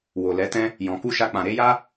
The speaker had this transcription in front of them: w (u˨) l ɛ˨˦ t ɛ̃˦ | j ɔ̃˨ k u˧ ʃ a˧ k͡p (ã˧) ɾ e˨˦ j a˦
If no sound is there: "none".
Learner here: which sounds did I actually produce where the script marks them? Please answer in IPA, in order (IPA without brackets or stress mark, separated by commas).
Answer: o˨, ã˨